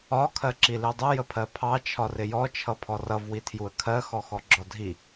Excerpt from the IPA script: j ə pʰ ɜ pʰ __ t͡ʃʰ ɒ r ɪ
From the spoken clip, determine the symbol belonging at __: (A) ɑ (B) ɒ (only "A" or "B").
A